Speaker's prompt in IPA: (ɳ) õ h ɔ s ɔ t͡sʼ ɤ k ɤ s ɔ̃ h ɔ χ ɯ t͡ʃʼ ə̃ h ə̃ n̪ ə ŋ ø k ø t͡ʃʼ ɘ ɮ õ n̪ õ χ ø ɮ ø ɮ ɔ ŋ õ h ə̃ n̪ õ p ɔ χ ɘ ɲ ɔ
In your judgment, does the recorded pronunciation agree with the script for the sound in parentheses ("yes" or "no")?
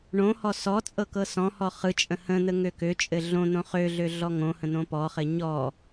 yes